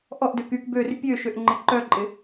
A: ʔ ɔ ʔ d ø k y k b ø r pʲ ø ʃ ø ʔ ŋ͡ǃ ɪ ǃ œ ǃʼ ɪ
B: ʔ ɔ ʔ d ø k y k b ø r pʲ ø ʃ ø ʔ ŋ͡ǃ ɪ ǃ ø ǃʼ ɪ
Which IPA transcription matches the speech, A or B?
A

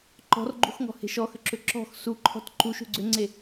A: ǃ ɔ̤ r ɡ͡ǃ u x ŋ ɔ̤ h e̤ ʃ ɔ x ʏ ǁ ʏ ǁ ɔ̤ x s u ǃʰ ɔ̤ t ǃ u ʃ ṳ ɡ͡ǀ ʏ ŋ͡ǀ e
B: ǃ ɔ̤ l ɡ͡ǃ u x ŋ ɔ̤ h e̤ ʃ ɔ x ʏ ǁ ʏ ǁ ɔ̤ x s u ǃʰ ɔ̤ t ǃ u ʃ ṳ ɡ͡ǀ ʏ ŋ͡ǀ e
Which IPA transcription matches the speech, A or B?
A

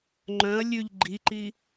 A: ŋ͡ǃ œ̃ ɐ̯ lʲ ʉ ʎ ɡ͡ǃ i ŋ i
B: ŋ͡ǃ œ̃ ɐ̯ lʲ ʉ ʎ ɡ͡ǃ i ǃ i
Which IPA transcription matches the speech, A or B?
B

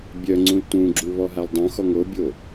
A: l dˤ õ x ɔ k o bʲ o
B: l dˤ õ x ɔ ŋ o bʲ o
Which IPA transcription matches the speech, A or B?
B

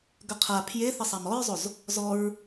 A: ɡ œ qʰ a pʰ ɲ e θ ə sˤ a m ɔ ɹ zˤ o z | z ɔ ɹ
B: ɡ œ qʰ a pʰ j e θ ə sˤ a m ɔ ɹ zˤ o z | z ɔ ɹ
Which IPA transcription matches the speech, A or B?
B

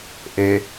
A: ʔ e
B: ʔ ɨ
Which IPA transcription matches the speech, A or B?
A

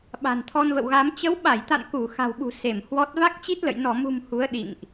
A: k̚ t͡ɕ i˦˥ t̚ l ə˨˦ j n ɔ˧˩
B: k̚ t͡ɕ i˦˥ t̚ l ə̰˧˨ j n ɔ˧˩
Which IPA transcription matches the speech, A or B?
B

